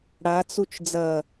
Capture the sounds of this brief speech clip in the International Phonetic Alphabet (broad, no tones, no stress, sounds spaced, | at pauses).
ɽ a t͡s u t͡ʃ d͡z ɐ